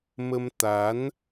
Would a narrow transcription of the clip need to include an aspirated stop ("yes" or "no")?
no